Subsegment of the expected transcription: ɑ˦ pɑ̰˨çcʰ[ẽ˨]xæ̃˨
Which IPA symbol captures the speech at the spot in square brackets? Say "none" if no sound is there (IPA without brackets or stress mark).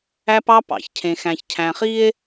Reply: ẽ˨